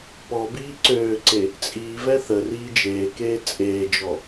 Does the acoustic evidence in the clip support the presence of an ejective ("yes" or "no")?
yes